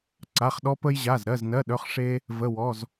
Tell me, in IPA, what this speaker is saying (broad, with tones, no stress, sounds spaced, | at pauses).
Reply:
ǀ a˩˧˩ χ ɗ ɔ˧ p ə˧ j ʑ a˩˧˩ z ɾ ɜ˩˧˩ z n ɜ˩˧˩ ɗ œ˩˧˩ χ ʂ e˧ | v ə˩˧˩ w ɔ˩˧˩ z